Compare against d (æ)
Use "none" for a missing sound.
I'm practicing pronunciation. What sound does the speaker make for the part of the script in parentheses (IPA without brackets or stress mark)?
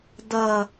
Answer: ɐ